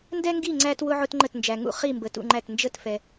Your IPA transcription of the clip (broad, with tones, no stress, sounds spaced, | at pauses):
n d ɛ˦ ŋ ɡ i˦˨ ŋ͡ǀ æ˦ t w ʊ˦ ʕ ʊ˦ t ŋ͡ǃ ə˦˨ t n d͡ʒ æ˨ ŋ ṵ˦˨ χ i˦˨ m b ə˨ t ṵ˦˨ ŋ͡ǃ æ˦˨ t n d͡ʒ ə˦˨ t f ɛ˨